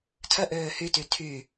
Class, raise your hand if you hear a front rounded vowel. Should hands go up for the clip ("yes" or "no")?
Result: yes